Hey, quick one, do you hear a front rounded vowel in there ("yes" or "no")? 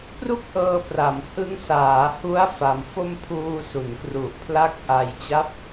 no